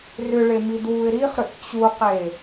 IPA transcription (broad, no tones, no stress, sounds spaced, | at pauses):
r ʏ ɭ e m i d w u ɪ̯ ɾ i χ ɾ ʏ ʔ t͡ɕ u q e